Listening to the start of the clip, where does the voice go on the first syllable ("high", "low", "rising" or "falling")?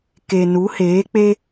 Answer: low